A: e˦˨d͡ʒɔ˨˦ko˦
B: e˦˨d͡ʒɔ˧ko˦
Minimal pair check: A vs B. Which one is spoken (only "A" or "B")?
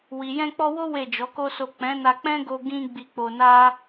A